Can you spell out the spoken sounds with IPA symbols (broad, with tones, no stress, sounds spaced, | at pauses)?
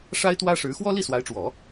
ʂ a˥ ɪ̯ t̪ w ä˥ ʂ ɻ̩˧˥ x w ɔ˥ l i˥˩ s w a˧˥ ɪ̯ ʈ͡ʂ w ɔ˨˩˦